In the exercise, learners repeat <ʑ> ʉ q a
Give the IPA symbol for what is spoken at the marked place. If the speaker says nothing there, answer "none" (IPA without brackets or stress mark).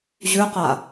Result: ʑ